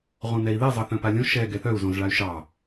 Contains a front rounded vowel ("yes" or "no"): yes